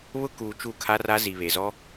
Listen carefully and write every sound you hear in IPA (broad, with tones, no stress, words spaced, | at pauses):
βʊ˦ kuː˨ t͡ʃu˦˨kʰa˦ra˦ zi˨βe˨zɔ˦